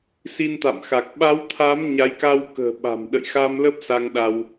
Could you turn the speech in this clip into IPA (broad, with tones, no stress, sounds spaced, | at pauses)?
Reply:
s i˧ n t̪ a̰˧˨ m x a˨˩ k̚ ɓ a˨˦ w t̪ʰ a˨˦ m ɲ a˨˦ j k a˧ w k ə̤ː˨˩ ɓ a̤˨˩ m ɗ ə̰˧˨ j x a˧ m l ə˦˥ p̚ s a˧ ŋ ɗ a˧ w